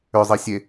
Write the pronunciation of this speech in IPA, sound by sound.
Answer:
ʏzˤisʲe

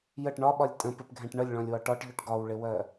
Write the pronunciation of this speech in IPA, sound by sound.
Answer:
jəʈ ɳɒɓɒlʲ tʼə̃pɪpɡʱɛ̃ʈ ɳəlʲɭɔ̃lʲwɒ ʈɒʈʎʊʈ ɡɒwɭɪwɜ

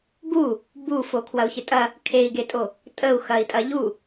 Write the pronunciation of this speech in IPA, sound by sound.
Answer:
ɡu | bufo kʰwɐu̯çɪtʼɐ | kʰei̯ɡetʼo | tʼəu̯xɐi̯tʼɐ ʎu

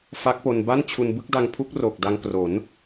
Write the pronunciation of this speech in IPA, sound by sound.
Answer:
fa˦˥k̚po˧nba˥˩nt͡ɕʰu˧n bɯ˥˩k̚da˧ŋpʰu˦˥k̚ ro˨˩k̚da˧ŋkro˩˦n

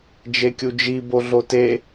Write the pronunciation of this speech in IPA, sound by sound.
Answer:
d͡ʒekʲud͡ʒi boɮote

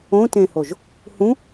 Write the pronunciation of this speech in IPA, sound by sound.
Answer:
õtẽhoʒ | hũ

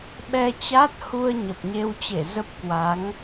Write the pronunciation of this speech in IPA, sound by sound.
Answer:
ɓɛ˧t͡ɕa˦˥t̚hu˧ə̯ ɲə˨˩p̚ɲe˧wt͡ɕe˧˩ zə˦˥p̚kwa˨˦ŋ

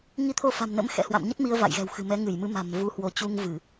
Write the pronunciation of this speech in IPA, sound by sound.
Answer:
ŋi˧t̪ʰo˧fa̤˨˩mnə̰˧˥m xɛ̰˧˥hwa̰˧˨mɲə˦˥t̚ mi˧ə̯va̰˧˨jɣɛ̤˨˩wxɨ̤˨˩ mɛ˨˦ ŋɨ˧˩jmɨ˨˦ ma̤˨˩mvu˧hwo˨˦ t͡ɕu˧ŋvɨ˧˩˨

